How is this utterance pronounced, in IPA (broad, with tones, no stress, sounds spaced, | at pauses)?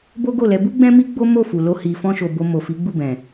b o˦ ɡ o˦˨ l ɛ˧ b u˦ ɡ͡b ɛ̃˦ m i˦ ɡ͡b o˦ m o˦˨ f u˨ l o˧ h i˧ f ɔ̃˦ ʃ o˧ b o˧ m o˨ f i˨˦ ɡ͡b u˦˨ b ɛ̃˨